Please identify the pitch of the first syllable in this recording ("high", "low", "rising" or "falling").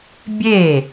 falling